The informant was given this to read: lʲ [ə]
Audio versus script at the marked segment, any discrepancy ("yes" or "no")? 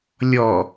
yes